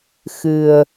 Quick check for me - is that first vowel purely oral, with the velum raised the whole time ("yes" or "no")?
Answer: yes